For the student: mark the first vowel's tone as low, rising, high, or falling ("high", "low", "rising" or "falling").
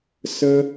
high